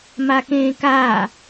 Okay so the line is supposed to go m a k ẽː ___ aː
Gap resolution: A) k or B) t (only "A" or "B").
A